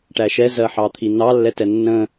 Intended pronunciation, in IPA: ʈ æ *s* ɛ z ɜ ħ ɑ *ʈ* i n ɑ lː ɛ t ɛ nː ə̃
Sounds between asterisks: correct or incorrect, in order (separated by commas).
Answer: incorrect, incorrect